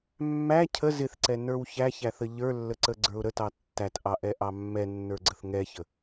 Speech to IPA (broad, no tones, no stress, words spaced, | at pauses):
mːæ cʰə zɪθǀɛ nə˞wçæçæθə ʎə˞lːəǀə ɡ͡ǀə˞ʊ̯ɾətɑ tːætʔɑʔɛ ʔɑmːɛnːə˞ɡ͡ǀəθ ŋɛçə